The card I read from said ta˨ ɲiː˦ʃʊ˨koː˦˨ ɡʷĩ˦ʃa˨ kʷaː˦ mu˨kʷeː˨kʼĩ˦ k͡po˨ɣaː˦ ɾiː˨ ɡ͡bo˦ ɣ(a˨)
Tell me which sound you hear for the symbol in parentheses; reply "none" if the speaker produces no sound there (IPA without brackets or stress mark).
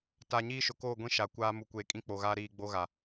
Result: a˨